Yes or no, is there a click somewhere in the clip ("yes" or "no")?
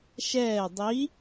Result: no